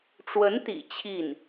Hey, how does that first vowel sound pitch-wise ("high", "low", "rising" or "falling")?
rising